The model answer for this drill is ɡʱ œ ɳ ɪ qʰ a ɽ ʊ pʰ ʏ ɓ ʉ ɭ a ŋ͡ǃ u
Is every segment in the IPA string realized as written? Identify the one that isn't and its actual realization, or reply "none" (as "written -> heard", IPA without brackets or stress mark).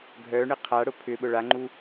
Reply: ʉ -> ʊ